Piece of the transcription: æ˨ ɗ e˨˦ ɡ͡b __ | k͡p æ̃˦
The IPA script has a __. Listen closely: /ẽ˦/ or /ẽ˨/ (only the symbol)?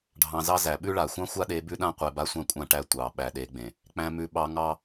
ẽ˨